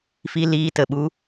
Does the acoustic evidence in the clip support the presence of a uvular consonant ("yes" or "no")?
no